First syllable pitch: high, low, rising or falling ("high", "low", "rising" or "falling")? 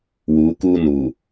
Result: rising